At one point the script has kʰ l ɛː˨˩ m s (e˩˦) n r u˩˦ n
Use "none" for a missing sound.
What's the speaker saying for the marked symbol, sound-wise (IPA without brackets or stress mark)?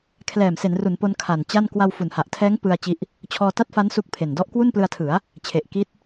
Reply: e˩˦